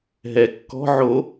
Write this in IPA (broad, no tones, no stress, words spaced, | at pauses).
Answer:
ɦɛ kːɔ̤ ʕo